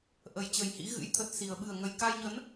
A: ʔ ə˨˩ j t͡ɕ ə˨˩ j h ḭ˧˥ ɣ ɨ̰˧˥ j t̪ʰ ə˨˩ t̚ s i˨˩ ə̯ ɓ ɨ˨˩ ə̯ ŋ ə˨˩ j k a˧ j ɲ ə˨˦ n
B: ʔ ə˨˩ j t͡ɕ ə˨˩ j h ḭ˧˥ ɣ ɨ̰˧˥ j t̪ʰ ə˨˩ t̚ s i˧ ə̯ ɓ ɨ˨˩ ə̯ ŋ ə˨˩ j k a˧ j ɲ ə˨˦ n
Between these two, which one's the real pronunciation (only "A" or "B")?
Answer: A